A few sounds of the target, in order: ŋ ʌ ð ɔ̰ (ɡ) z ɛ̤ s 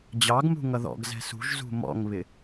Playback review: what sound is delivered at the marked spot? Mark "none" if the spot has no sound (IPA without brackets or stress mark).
ɡ